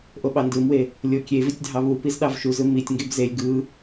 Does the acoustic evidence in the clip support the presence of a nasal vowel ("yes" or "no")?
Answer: no